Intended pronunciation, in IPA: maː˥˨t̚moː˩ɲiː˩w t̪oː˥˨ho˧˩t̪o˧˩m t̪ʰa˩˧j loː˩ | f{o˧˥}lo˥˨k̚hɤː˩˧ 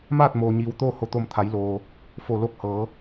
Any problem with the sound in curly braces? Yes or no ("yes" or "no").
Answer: yes